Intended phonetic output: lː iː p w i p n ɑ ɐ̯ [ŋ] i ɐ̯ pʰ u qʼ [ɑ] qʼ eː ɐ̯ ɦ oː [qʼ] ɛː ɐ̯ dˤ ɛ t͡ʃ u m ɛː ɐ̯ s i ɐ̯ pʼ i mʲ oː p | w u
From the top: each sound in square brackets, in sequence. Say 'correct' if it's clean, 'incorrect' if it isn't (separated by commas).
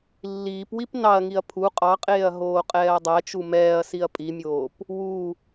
correct, correct, correct